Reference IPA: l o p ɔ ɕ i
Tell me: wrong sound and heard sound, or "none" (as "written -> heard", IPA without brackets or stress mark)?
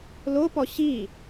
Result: none